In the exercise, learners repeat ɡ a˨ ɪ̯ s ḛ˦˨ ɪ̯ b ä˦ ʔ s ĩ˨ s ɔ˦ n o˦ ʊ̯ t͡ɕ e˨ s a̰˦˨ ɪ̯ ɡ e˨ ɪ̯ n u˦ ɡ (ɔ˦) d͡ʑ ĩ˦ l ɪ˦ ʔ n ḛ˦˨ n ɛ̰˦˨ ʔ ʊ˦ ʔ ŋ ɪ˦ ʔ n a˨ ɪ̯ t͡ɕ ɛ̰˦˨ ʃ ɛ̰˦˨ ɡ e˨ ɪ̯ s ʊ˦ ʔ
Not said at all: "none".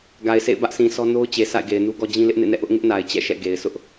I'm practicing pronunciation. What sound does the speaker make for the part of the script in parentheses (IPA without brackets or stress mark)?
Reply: ɔ˦